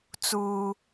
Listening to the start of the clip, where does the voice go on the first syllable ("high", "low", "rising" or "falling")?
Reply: high